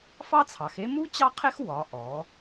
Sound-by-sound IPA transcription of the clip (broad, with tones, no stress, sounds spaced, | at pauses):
f ɑ˥ t͡sʰ ɑ˩˧ x e˥ m u˥ t͡ɕ ɑ˥ qʰ e˥ x w ɒ˩˧ ʔ ɔ˩˧